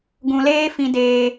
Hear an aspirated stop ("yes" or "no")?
no